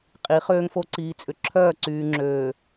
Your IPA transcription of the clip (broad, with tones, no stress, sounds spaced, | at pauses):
qʼ i˨˦ χ øː˦ ŋ f o˦ ǀ iː˨ t͡sʼ ʏ˨ ǁʰ œː˦˨ ǀ yː˨ ŋ͡ǁ øː˨